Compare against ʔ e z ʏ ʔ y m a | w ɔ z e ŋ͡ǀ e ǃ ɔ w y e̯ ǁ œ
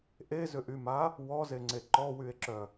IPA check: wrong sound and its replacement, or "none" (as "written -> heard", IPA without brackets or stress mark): none